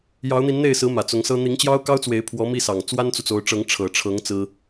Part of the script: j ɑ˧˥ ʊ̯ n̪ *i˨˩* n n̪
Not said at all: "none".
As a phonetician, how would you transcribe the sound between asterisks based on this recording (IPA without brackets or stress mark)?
i˧˥